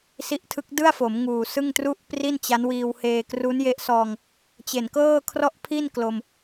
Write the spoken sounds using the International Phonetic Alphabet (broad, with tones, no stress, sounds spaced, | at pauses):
s i˦˥ ʔ tʰ ɯ˦˥ k̚ d ɯ˥˩ a̯ f o˩˦ m ŋ uː˨˩ s ɯ˥˩ ŋ t r u˥˩ ʔ p r i˥˩ n t͡ɕ a˦˥ n w iː˧ w h eː˧ k r u˦˥ n j e˦˥ ʔ s ɔː˧ ŋ | t͡ɕ e˨˩ n k ɤː˥˩ kʰ r ɔ˥˩ ʔ pʰ i˥˩ n k l o˧ m